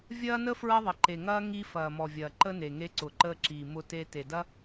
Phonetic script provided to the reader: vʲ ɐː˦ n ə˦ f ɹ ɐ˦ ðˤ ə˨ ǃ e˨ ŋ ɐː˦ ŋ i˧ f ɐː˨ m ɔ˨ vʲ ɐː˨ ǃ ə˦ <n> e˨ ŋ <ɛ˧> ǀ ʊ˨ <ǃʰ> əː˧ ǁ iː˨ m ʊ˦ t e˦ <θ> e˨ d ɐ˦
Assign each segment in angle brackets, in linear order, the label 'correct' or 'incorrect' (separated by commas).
correct, incorrect, incorrect, incorrect